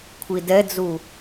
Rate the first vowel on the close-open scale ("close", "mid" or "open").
close